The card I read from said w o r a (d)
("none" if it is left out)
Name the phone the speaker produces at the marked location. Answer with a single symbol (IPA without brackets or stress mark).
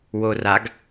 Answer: ɡ